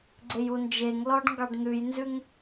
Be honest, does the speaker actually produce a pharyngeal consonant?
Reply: no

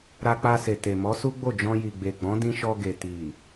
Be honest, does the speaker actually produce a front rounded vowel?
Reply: no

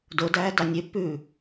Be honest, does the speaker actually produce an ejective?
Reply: no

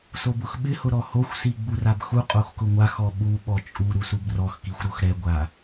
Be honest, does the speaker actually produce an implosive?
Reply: yes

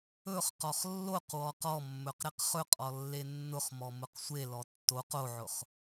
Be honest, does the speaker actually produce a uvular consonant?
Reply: yes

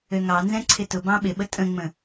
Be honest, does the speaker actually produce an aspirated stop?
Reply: yes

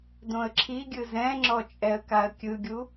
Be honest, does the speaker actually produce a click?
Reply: yes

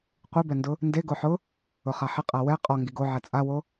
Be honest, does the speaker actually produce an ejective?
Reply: yes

